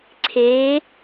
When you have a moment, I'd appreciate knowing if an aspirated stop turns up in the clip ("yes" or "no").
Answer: yes